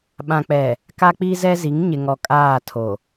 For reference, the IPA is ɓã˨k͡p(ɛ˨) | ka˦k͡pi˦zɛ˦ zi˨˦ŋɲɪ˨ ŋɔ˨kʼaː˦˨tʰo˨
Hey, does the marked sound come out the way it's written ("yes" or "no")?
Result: yes